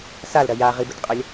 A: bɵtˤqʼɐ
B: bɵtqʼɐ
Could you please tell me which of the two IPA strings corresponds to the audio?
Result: B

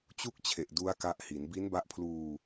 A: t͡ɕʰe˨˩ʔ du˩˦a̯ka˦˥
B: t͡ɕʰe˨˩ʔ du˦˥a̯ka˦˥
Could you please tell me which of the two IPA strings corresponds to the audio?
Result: B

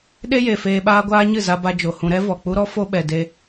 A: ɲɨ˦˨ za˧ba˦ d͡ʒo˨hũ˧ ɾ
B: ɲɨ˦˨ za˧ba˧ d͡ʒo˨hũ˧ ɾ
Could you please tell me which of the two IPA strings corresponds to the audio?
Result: B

